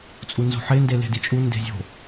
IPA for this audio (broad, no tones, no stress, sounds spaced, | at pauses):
t͡sʼ u n z o̤ ħ e n d e l e̤ d i t͡ʃʼ u n d e̤ zʲ o̤